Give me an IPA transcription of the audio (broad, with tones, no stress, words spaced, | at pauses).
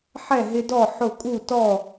ħɛ˥˨ɦɪ˦dɔ˥˨ ħʊ˥˨ kʼu˥˨tɔ˥˨